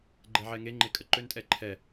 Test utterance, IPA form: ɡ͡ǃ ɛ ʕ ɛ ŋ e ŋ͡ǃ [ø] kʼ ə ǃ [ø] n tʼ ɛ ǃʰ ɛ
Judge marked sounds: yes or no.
no, yes

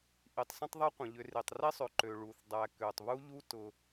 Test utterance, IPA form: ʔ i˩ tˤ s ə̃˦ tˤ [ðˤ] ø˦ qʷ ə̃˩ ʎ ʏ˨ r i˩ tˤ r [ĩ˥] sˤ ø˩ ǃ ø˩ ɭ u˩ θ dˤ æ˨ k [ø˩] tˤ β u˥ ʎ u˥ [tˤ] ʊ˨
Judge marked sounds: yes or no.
yes, no, yes, no

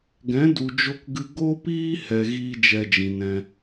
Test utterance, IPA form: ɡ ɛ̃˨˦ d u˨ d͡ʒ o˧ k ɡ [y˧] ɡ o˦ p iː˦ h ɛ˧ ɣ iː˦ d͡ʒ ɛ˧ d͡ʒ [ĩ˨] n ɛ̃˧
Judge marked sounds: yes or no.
no, yes

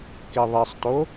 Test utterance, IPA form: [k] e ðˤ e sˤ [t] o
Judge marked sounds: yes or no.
yes, yes

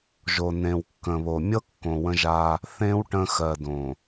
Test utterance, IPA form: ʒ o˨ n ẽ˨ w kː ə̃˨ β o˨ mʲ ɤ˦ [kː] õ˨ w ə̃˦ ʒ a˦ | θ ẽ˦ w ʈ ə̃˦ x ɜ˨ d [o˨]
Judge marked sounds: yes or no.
yes, no

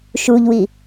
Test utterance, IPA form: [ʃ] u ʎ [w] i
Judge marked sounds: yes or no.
yes, yes

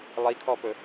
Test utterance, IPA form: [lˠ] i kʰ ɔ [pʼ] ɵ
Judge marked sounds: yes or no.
yes, no

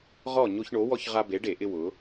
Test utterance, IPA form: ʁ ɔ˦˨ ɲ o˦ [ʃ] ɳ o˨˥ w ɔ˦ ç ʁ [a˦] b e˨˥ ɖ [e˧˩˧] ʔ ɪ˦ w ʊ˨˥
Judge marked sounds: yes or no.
no, yes, yes

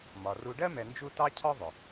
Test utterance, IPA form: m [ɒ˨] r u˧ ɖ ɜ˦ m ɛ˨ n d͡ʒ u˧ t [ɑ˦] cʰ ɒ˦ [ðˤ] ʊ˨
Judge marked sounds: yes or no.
yes, yes, yes

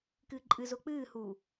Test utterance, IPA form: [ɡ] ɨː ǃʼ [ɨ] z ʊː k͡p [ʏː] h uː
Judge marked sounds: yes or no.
no, yes, no

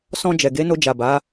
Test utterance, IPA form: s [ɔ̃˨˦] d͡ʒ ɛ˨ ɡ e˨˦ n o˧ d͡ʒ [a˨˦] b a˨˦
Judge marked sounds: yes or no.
no, no

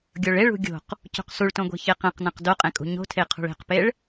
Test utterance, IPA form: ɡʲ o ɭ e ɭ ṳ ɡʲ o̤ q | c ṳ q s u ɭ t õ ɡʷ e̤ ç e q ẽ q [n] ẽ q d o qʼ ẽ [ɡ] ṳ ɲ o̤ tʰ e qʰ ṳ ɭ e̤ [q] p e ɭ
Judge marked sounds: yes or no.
yes, no, yes

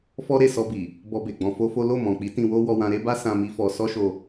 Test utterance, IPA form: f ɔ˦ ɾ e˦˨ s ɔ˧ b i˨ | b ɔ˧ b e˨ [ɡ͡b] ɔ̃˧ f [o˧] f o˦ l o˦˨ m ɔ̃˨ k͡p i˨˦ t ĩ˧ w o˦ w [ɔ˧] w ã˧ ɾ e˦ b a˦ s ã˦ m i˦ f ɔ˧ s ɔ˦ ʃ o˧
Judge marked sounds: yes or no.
yes, no, yes

